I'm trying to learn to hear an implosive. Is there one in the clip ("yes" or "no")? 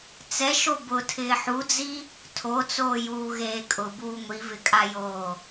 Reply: no